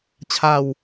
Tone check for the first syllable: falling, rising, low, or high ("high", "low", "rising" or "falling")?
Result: falling